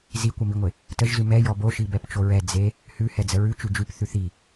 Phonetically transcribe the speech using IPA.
z i kʷ ə m i ŋʷ e | t ə ʒ z ʉ m ɛ j ɔ b o ʃ i b ɛ p t͡ʃ o ɹ ɛ d͡z e | h ʉ h ɛ d͡z ə ɹ ʉ t͡ʃ ʉ d͡ʒ ʉ p θ ʉ θ i

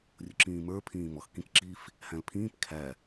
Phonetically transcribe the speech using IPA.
rʲ ʊ ǁ ĩː m ə˞ pʰ ĩː m ɔ x k ĩ k ǁ i f | h æ̃ l pʰ ĩː p kʰ æ

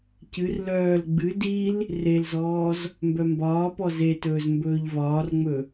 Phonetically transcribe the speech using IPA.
c ɨ r l œː l ɡ͡b ɨ d i l | r e l z ɔː z | m b œ m b ɒː p ɔ z e t ɵː z m b ɵː ʎ v ɒː r ŋ͡m ɵ

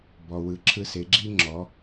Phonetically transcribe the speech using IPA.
b ɔ˩ w ɯ˩˧ ǁʰ ɯ˧ s e˩˧ ɡ͡ǁ i˥ ŋ͡ǁ ɔ˩˧

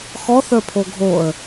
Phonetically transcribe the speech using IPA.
x ɔ θ ə˞ pʰ o ɡʱ o ə̯

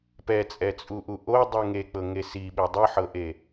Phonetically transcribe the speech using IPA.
p ɛ t͡sʼ ɛ t͡sʼ u ʔ u ʔ o dˤ u ŋ e k͡p ɤ ŋ e s i ɓ e dˤ ɯ ħ ɤ ʔ e

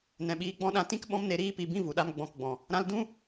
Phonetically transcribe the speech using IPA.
n ɛ̃˨ ɓ iː˧ ɡ͡b ɔ̃˦ ɗ ã˧ t ĩ˦ k ɓ ɔ̃˦ m n e˧ ɾ iː˦ p i˧ b ĩ˦ v u˨ ɗ a˦ m ɡ͡b ɔ̃˦˨ k ɡ͡b ɔ̃˨ | ɾ ã˦ l d ũ˦

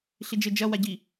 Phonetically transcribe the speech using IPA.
ɬ i d͡ʒ ɘ d͡ʒ ɐ w a ɟ i

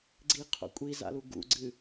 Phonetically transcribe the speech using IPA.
ɡ͡ǀ i qʰ o̰ kʷʼ i z a̰ l u ɡ ṵ ɡ͡ǀ ɨ

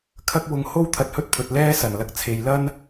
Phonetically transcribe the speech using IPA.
kʰ ɐ˥ k̚ w ʊ˨˧ ŋ h o˥ w t̪ʰ ɐ˧ t̚ h ɵ˥ t̚ pʰ ɵ˨ t̚ l ɛː˥ s ɐ˨˩ n l ɐ˧ k̚ t͡sʰ e˨ j l ɐ˥ n

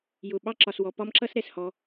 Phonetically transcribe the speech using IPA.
j ʊ˩ ɓ ɑ˥ ǁ ɒ˩ s w ɔ˩ p ɒ˥ m ǁ ʌ˥ s ɾ ɛ˩ s h ɔ˩

